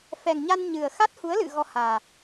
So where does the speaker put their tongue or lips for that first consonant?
lips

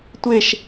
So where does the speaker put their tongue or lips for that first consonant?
tongue tip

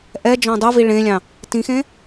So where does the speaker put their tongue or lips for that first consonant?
throat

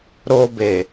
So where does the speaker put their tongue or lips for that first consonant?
tongue tip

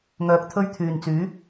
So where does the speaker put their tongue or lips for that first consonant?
velum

